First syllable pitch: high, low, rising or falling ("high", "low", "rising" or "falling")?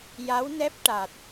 rising